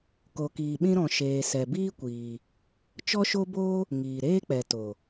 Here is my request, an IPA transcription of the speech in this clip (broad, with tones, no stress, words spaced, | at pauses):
ko˨kiː˨ɓĩ˧ ɾɔ̃˧ ʃeː˨sɛ˨biː˦ kʷiː˨ | t͡ʃɔ˦ʃo˦boː˦ | ŋiː˨ɾeː˦k͡pɛ˨to˨